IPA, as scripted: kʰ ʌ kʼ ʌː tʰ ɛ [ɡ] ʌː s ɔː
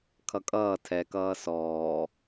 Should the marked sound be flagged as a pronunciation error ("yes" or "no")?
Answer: yes